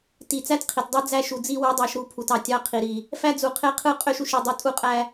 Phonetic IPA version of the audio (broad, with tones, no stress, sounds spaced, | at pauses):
t i˨ t͡s æ˦ t qʰ i˨ t dˤ ɯ˦ d͡z æ˦ ʃ u˨ d͡z i˦ w ɯ˦ dˤ ɑ˦ ʃ ɾ u˦ pʰ u˨ t ɑ˨ tʲ ɑ˦ qʰ i˨ ɾ i˨ | f æ˦ d͡z u˨ qʰ e˦ qʰ ɯ˦ qʼ ø˦ ʃ u˨ ʃ i˨ dˤ u˦ tʼ u˦ qʼ æ˦